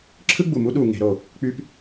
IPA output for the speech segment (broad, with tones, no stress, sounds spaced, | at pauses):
ǁʰ ɯ˦ ɡ͡b u˨ m u˦ ɗ u˨ ŋ e̤˨˦ ɾ o˨ | k͡p y˦ p